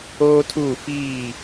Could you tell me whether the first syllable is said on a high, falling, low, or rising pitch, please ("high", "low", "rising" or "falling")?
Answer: high